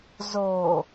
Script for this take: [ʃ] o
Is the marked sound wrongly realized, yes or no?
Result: yes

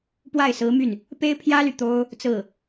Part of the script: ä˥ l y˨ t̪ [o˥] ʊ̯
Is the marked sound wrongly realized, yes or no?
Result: no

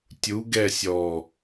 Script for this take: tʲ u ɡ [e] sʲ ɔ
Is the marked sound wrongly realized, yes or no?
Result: yes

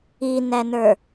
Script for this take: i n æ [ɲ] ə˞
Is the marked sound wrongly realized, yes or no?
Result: yes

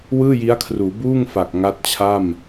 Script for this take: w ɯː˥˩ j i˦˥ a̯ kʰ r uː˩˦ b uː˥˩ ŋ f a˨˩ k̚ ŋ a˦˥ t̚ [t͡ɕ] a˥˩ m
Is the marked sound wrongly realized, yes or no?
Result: yes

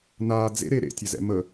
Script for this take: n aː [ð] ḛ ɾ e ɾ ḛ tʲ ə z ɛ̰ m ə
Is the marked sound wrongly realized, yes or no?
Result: yes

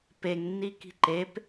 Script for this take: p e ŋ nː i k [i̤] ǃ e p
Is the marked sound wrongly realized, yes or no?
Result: no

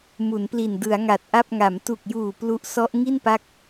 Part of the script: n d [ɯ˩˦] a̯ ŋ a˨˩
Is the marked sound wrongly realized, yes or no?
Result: no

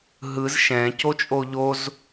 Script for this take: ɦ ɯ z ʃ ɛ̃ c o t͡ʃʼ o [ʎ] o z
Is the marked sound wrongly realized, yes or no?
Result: no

